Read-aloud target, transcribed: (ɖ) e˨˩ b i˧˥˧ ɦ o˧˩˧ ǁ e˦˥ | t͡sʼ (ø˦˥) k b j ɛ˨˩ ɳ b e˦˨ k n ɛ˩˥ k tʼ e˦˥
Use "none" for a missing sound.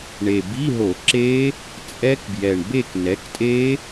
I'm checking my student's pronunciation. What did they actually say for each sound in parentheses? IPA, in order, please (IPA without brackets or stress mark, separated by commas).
ɳ, ɛ˦˥